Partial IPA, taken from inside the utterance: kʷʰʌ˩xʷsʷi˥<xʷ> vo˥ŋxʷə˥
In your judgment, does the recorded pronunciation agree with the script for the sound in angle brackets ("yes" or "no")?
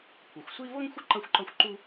no